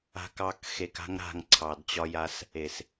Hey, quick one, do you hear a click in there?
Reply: yes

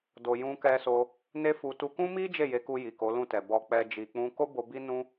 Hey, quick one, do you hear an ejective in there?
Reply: no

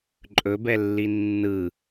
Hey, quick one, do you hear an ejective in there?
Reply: yes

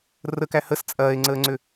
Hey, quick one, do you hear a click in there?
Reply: yes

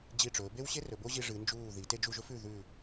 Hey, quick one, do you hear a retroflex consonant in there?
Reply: yes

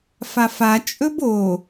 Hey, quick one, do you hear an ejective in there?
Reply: yes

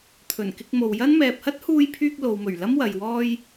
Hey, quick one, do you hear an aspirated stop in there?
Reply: yes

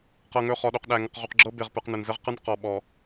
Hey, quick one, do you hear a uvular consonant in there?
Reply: yes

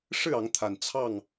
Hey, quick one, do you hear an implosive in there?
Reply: no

